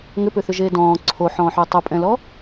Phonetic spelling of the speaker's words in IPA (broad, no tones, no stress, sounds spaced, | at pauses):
ŋ ʏ p ʏ θ ʏ ʒ eː d ɔ̃ː ǀʰ o ħ ɔ̃ː ħ ʏː tˤ ʏ pʼ ɛ̃ l ɔ